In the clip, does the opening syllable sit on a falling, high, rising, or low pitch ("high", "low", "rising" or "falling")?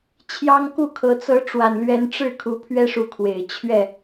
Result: high